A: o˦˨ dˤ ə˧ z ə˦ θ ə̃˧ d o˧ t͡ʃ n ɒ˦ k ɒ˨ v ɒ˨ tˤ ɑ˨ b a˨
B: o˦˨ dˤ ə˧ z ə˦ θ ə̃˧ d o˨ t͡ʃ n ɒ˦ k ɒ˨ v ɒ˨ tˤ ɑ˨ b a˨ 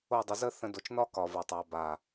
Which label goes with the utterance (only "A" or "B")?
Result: B